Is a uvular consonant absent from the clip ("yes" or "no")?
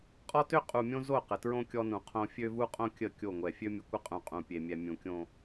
no